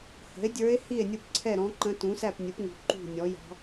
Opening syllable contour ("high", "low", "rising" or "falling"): rising